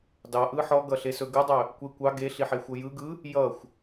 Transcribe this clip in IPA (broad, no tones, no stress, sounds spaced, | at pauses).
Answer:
d ɑ ʔ ɯ ħ ɔ ɡ ʌ ɬ e s ɵ ɡ ɯ dˤ ɵ | kʷ e kʷ ɑ ɡ e ɬ i ħ e xʷ ʌ j ɯ ɡ ɯ | j ʌ xʷ